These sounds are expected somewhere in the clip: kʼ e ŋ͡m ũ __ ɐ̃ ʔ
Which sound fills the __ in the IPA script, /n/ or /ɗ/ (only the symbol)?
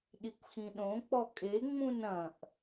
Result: n